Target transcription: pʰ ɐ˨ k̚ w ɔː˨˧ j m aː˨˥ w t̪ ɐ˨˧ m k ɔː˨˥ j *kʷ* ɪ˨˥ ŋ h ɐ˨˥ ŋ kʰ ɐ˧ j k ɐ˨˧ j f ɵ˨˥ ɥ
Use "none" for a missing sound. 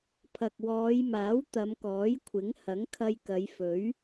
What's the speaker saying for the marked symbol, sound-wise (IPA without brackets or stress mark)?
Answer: kʷʰ